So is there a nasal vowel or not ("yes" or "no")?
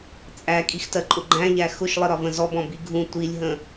yes